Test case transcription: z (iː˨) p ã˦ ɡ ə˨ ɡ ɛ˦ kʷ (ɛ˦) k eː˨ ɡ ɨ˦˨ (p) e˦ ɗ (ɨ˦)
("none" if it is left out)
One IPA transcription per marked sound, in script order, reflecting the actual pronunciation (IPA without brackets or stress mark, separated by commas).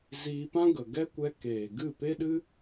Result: iː˧, ɛ˧, p, ɨ˦